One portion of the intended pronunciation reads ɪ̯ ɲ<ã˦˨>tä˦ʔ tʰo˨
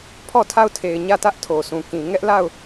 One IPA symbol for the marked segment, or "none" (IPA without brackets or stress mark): ä˦˨